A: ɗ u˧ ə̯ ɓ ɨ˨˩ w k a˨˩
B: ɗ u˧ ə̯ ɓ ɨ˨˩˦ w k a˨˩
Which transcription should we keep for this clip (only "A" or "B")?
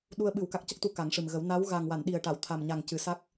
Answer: B